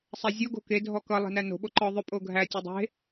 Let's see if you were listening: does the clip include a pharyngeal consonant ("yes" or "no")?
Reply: no